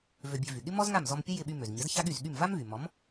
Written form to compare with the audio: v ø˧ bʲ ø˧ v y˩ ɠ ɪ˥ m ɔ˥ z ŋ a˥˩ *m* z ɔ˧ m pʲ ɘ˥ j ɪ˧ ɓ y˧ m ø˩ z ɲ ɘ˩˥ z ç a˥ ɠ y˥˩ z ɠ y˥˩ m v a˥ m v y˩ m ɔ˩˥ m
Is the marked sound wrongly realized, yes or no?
no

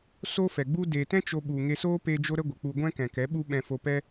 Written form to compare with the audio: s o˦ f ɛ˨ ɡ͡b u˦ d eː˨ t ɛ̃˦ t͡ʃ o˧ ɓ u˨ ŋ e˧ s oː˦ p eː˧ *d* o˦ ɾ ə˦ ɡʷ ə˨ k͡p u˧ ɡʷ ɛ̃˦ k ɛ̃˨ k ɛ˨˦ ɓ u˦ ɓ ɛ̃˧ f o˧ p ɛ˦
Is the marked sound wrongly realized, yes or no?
yes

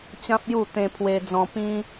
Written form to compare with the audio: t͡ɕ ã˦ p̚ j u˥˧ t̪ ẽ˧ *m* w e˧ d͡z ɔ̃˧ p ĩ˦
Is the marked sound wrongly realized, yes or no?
yes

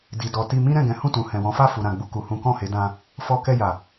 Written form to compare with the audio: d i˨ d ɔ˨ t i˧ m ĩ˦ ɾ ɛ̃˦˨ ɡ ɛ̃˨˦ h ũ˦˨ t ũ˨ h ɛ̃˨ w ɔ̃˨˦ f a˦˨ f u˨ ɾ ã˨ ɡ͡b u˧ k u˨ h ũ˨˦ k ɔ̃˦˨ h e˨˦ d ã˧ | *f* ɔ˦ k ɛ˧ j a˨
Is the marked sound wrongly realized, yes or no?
no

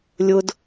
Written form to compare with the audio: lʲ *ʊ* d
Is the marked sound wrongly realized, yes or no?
no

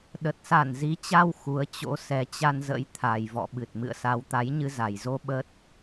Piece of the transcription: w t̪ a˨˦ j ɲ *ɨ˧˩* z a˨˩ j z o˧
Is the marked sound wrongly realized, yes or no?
yes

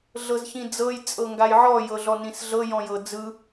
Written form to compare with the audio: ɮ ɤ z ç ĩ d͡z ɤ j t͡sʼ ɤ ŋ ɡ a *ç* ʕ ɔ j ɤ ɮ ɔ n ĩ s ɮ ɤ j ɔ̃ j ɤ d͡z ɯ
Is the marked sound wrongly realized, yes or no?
yes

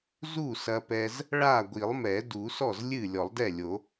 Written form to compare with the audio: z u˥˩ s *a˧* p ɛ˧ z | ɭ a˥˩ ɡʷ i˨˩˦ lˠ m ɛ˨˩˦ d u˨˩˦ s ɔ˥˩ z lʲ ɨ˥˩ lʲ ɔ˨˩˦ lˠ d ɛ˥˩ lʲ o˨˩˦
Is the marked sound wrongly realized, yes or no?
yes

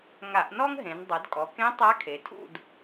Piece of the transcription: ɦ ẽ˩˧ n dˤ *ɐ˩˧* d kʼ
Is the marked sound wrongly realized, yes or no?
no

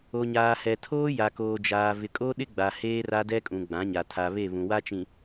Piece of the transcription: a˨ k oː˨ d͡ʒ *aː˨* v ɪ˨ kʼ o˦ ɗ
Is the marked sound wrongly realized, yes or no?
no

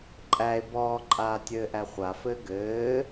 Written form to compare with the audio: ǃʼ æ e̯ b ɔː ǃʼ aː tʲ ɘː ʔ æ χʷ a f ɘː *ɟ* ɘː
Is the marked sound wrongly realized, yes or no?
yes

